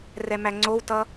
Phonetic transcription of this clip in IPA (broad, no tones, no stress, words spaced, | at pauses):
rɛmæŋ͡ǀowtʌ